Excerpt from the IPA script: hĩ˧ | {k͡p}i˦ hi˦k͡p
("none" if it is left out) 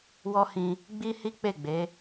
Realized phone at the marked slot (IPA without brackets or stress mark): ɡ͡b